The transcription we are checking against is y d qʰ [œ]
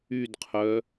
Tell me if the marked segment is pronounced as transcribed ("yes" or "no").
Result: yes